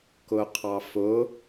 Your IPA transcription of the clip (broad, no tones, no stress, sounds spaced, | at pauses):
k ʊ qʰ ɑ f ʊ